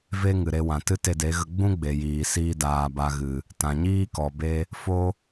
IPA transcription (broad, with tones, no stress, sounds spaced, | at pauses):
v e˦ ŋ ɨ˨ ɾ e˧ w ã˨ t ɨ˦ t e˧ d e˨˦ ɣ ə˧ ɡ͡b ũ˦ ɡ͡b e˨ j iː˨ s iː˦ d aː˧ b a˧ ɣ ɨ˨ | t ã˨ ɲ iː˦ k ɔ˨ b e˧ | f o˦